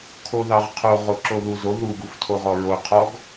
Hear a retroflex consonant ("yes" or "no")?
no